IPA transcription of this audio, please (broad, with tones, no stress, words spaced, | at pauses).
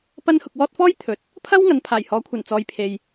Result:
pɐ˥n hʊ˧k̚ wɔː˥t̚ fɔː˥jt̪ʰɵ˨t̚ | pʰɐ˥w ŋɐ˨˧npʰaː˨˩jhɔː˨˥kʷʰɐ˨˩n t͡sɔː˨˧jpʰe˨j